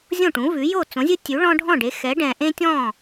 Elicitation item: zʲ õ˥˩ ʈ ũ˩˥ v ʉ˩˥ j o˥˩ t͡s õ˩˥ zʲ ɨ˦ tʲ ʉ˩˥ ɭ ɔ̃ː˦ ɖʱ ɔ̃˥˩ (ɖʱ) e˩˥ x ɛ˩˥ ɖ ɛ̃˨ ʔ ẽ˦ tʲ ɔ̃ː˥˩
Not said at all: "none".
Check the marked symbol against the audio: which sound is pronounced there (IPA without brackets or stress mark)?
ɖ